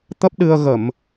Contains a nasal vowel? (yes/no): no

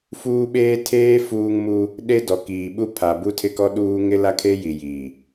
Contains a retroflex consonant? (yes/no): no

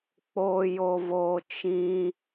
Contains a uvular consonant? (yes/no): no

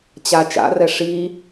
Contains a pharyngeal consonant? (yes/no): no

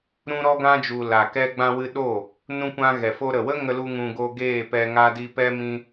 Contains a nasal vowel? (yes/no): yes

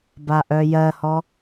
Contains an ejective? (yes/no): no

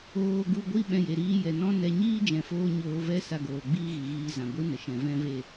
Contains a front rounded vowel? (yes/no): no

